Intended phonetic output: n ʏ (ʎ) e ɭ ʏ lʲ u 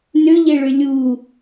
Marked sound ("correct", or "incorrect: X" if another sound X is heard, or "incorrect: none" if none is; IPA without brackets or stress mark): correct